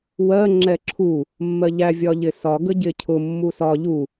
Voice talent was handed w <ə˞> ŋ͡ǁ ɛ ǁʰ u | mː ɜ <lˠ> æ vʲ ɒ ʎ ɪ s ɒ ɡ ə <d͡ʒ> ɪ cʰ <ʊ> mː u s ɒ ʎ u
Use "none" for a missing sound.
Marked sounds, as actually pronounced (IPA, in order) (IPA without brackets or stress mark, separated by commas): ɜ, ʎ, ɟ, ʊ